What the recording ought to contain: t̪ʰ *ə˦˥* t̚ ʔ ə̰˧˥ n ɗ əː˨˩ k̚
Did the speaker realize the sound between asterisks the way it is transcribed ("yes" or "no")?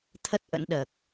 yes